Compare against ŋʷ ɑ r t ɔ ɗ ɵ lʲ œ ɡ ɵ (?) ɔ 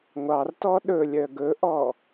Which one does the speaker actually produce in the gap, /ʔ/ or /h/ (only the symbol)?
ʔ